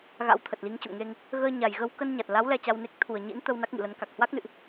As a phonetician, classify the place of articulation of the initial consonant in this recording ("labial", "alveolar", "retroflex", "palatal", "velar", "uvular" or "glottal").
velar